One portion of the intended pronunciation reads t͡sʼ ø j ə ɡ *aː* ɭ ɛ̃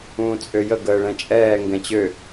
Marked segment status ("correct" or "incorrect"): incorrect